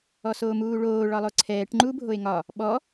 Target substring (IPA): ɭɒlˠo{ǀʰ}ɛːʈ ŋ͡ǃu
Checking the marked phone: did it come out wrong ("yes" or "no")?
no